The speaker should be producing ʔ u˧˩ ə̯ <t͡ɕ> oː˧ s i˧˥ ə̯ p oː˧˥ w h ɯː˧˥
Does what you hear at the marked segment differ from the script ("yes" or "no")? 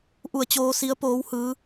no